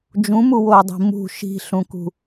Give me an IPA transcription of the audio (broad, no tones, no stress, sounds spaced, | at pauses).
d͡ʒ ũ m u w o dˤ i̤ m ṳ ʃ i̤ ɬ ũ k ṳ